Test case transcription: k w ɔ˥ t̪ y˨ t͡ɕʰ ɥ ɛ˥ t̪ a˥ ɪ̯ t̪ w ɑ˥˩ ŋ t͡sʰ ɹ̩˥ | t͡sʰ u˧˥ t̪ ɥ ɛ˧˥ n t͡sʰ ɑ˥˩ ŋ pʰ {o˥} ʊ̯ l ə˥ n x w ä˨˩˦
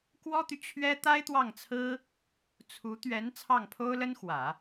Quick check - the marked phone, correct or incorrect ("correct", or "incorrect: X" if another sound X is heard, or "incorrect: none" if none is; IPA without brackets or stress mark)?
correct